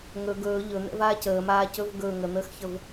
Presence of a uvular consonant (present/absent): absent